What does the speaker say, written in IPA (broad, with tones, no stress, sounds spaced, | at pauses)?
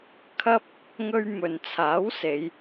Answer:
kʰ ɐ˥ p̚ | ŋ ɵ˧ ɥ m ɵ˨ n t͡sʰ aː˨˥ w s e˨˧ j